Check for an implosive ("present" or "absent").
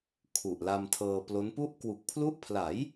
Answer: absent